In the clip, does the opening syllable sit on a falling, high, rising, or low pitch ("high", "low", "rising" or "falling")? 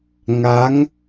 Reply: rising